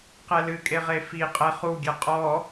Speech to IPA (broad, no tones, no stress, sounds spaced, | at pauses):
q ɛ l ɨ kʼ e ʁ e f i qʼ ɛ χ u ɡʲ ɛ qʼ ɔ